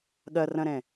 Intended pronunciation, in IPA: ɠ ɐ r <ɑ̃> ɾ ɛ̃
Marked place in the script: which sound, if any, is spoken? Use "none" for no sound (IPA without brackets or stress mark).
ɐ̃